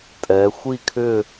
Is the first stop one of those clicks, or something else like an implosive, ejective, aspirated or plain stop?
ejective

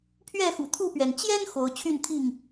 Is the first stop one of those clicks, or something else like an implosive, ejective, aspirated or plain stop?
aspirated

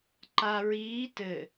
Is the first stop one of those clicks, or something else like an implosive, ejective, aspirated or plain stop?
click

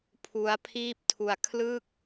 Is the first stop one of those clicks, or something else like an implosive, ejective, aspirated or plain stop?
aspirated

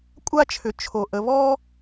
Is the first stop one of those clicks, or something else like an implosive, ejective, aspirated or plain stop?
ejective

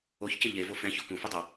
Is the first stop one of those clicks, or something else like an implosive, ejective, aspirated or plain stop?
plain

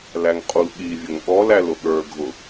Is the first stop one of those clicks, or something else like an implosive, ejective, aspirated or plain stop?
ejective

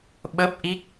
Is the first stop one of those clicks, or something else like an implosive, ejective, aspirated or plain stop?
implosive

